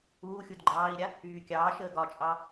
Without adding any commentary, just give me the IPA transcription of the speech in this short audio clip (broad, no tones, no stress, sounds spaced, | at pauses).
uː xʲ u d ɡ͡ǃ ɑː i̯ ɾʲ a | yː kʲ ɑː ʃ əː ɡ ɒ t͡ʃʼ ɑ